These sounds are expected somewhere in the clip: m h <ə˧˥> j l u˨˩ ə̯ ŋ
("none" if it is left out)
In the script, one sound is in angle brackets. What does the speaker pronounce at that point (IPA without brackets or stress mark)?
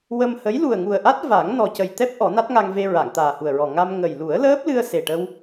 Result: ə˧˥